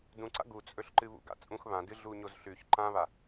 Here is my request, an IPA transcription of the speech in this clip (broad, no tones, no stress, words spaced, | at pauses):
dũǀa̰ ɡut͡sʼɵɬǃɨ βṵɡa̰ t͡sʼũx βãdɨ ɮuɲozɬʉç ǃãβa